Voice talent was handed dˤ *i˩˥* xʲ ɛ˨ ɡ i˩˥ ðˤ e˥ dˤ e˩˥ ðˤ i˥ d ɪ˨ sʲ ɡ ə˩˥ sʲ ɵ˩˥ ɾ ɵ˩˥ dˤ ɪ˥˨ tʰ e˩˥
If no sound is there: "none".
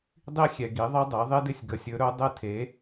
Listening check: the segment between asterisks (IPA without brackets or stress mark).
i˥